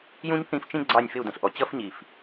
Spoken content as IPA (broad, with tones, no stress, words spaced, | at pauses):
jũ˥ɲθĩ˥˧ft͡ʃĩ˥ ɡ͡ǀɑ˥˧nʲfɪ˥˧u̯də̃˧˩ɬʔɔ˧ t͡ɕʌ˥fɲi˧˩f